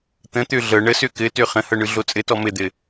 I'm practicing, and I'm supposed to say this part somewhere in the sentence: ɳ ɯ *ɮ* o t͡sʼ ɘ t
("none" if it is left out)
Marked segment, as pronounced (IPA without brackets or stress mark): ɮ